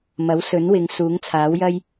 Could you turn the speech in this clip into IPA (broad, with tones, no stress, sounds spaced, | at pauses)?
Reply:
m ɐ˨˥ w s ɵ˨˥ n w ɪ˨˧ ŋ s uː˨˥ ŋ t͡sʰ aː˨˥ w j ɐ˥ j